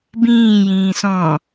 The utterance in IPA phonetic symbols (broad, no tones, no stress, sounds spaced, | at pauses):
b ĩː j ĩː s ɔ̃